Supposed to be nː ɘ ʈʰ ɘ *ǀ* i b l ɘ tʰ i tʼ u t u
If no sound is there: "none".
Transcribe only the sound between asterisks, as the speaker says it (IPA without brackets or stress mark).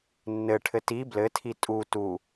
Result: t